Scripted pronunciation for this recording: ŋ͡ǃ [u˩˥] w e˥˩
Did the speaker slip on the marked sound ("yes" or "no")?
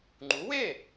no